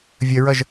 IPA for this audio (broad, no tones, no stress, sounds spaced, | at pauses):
vʲ ə ɹ ʌ ʒ